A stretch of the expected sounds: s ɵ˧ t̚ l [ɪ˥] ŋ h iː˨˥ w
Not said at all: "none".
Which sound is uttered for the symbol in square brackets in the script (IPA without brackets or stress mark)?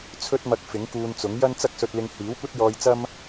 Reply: ɪ˧